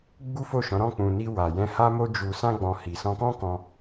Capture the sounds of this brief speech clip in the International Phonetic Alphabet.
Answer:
ɡ͡b u˦ f o˦˨ ʃ ɔ̃˨˦ ɾ ɔ̃˦˨ k͡p ũ˨ n i˧ w a˨ j ɛ̃˧ h a˦ m o˦ d͡ʒ u˧ s ã˦ ɡ͡b ɔ̃˧ h i˨ s ɔ̃˧ k ɔ̃˦ k ɔ̃˧

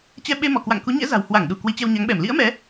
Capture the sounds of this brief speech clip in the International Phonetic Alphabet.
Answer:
t͡ɕ ɛ˧ ɓ e˧ m ɔ˧˩ k w a̰˧˨ ŋ k u˨˦ ɲ ɛ̰˧˥ z a̤˨˩ w h w a˧˩ ŋ ɗ u˧˩ k w i˨˦ t͡ɕ ɛ˧ w ɲ a˨˦ ŋ ɓ ɛ˧˩ m l ḭ˧˥ ə̯ m ɛ˨˦

